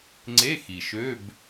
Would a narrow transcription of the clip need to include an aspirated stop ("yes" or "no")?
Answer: no